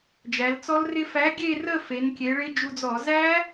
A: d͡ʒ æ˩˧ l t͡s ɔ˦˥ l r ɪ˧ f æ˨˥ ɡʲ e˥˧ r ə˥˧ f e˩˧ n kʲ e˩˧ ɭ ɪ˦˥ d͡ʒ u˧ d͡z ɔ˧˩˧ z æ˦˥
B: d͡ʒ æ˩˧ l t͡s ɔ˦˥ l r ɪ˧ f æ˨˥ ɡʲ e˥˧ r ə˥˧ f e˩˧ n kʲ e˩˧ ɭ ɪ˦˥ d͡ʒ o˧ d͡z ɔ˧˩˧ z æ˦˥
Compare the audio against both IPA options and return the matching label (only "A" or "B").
A